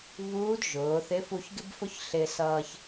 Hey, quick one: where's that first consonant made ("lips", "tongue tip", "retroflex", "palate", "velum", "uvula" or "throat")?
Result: lips